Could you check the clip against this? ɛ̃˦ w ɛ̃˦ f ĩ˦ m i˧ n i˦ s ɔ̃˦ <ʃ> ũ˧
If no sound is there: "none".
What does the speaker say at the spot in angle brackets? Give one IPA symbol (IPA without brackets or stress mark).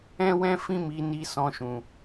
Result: ʃ